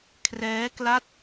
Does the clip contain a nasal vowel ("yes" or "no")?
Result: no